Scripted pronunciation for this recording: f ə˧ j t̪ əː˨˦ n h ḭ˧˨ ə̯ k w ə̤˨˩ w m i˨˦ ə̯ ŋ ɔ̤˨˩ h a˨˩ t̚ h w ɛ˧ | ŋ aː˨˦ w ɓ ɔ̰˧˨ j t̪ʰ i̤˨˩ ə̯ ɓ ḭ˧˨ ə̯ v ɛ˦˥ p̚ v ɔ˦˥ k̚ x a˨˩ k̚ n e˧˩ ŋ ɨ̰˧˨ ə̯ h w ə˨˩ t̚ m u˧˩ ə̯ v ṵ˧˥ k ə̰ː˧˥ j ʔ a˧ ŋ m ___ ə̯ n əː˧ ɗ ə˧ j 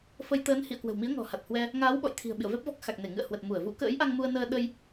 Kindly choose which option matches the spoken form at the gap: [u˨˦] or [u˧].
u˧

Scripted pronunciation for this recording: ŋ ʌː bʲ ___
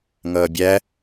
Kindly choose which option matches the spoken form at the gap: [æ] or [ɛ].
æ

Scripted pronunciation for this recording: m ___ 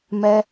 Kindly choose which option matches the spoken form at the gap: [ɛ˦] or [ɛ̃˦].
ɛ˦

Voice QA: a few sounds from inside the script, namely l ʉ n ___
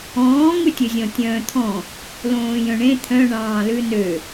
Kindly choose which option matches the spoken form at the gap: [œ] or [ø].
ø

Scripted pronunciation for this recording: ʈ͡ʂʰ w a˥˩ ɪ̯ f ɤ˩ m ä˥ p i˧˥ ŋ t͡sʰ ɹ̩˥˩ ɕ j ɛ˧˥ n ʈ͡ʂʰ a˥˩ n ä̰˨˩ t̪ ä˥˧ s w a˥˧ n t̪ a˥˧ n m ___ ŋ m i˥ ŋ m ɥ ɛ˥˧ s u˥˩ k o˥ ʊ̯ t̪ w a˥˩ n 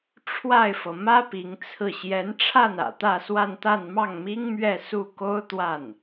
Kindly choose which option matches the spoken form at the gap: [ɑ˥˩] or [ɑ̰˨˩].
ɑ˥˩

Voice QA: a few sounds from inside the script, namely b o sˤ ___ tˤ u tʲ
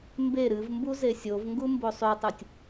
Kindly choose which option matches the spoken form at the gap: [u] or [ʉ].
ʉ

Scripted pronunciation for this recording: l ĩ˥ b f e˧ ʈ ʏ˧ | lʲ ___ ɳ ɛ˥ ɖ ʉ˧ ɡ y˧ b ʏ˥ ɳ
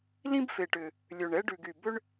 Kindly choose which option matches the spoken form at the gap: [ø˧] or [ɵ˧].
ø˧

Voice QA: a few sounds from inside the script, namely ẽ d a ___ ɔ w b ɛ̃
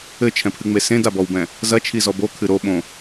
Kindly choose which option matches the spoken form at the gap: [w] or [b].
b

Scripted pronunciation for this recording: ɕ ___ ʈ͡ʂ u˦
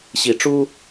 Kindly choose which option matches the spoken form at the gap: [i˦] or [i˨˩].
i˨˩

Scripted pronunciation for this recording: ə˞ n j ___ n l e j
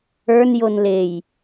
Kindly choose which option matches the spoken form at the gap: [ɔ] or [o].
o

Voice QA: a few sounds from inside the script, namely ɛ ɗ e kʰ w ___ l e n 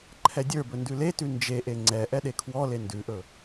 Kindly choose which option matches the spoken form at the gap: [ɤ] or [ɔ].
ɔ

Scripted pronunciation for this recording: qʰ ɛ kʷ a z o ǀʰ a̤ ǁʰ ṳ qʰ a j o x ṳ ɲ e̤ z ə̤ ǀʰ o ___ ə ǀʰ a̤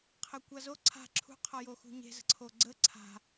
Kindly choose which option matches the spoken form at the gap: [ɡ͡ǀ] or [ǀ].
ɡ͡ǀ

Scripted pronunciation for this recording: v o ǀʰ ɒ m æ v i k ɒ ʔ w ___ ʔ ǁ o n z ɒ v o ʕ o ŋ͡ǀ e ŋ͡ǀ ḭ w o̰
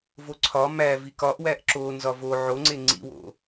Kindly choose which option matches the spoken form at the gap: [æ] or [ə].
æ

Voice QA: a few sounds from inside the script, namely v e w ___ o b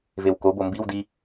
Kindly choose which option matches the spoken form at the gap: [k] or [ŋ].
k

